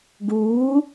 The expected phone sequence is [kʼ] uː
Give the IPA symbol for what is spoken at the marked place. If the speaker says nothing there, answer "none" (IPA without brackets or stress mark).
ɡ